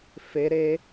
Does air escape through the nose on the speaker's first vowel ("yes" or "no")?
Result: no